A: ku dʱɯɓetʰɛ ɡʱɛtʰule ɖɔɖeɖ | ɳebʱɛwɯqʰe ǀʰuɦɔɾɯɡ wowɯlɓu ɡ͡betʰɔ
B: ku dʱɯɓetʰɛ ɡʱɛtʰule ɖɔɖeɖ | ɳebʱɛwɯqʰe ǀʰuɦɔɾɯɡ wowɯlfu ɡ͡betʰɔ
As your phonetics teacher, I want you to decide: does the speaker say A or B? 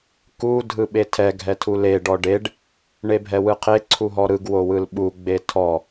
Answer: A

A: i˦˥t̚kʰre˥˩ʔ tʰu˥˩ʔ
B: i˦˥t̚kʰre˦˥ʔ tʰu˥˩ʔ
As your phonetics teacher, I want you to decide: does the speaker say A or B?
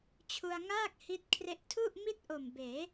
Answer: B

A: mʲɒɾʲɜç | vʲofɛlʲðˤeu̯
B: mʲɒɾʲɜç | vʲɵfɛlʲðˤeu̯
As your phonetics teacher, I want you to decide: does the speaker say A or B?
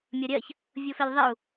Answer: A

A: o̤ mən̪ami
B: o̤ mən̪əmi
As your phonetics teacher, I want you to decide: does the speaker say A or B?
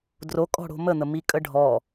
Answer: B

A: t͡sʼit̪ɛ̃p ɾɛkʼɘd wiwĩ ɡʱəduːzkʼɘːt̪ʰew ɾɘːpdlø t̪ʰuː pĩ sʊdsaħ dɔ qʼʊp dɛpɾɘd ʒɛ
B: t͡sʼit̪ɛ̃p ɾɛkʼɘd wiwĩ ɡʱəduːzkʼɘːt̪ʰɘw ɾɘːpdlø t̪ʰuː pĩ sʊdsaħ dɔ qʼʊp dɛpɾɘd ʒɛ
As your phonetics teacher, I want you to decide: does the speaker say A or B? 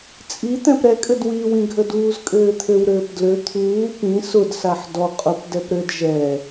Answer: B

